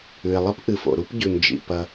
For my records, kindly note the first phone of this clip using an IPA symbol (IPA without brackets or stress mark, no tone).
ʉ